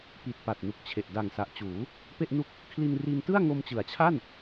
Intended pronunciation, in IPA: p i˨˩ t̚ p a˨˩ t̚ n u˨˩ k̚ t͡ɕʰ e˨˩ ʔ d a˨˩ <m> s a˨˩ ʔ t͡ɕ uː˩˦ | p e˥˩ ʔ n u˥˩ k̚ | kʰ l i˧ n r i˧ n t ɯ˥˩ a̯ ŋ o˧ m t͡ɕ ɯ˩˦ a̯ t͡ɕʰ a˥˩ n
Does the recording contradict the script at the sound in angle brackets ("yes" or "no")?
yes